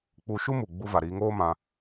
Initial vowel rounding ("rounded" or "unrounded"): rounded